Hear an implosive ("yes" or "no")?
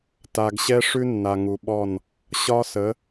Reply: yes